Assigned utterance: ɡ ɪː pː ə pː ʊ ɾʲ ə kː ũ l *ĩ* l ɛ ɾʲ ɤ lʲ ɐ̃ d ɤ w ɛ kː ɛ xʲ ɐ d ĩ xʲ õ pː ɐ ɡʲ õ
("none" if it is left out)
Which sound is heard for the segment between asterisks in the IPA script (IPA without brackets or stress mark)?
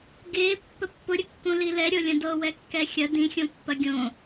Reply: i